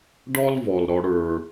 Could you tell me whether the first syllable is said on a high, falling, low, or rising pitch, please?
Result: high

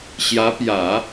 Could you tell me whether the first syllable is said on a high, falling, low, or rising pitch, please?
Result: rising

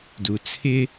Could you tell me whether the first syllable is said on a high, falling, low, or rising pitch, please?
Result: low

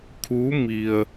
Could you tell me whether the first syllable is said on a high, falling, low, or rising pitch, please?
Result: rising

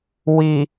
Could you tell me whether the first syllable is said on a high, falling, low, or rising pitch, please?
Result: low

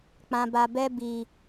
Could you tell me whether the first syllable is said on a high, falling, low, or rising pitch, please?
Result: low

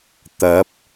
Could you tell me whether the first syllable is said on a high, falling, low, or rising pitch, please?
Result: rising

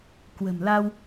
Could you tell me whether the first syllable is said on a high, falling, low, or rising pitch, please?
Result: low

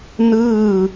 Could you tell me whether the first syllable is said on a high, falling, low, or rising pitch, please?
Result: falling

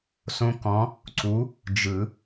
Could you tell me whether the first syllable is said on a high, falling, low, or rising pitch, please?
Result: high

